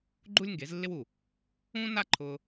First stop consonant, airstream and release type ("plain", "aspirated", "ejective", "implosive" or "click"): click